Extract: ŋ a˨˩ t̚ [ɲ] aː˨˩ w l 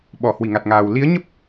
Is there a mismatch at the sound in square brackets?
yes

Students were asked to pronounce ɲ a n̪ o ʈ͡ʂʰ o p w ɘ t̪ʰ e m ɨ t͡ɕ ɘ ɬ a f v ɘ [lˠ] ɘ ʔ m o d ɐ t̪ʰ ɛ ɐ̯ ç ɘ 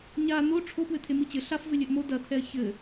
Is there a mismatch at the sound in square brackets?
yes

